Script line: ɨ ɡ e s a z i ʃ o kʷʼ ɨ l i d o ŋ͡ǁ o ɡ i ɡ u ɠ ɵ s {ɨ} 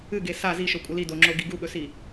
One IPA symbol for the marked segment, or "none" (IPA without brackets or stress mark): i